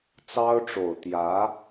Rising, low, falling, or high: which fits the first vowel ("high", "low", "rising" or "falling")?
high